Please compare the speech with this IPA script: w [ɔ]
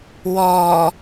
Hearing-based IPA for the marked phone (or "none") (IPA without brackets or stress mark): ɔ